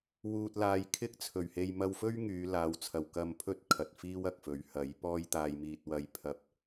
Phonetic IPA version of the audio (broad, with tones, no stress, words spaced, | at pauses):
wuː˧t̚laː˧j kʰɪ˥k̚t͡sʰɵ˨˩ɥhe˧j mɐ˧wfɵ˥ɥ ŋyː˨˧laː˨˧wt͡sʰɐ˨w kɐ˧mpʰɵ˥t̚ kʰɐ˨t̚ fiː˥wɐ˨k̚fɵ˨˥ɥ hɐ˨˥j pɔː˥j t̪aː˧jmiː˧t̚ wɐ˧jpʰɐ˧p̚